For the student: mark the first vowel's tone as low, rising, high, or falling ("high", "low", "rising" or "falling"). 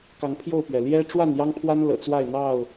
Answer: rising